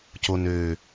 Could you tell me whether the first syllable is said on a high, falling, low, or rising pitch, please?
low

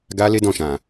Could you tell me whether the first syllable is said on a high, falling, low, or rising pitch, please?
high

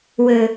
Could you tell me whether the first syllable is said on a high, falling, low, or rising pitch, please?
low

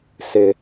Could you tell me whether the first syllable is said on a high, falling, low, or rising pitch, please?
low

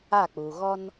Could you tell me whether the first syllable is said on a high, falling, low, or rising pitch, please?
falling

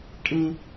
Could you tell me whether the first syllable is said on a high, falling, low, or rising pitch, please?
high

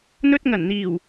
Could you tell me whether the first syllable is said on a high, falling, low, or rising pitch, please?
high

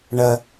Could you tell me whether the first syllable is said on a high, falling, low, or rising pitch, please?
low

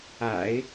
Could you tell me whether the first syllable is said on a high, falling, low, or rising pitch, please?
low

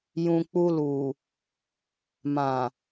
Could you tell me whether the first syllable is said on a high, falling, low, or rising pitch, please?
low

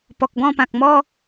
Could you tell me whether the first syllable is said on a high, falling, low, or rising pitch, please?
low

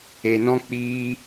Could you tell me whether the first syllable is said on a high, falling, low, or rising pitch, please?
low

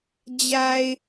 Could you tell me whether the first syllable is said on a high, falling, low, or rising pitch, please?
low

